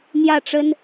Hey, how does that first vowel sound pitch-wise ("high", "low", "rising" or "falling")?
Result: falling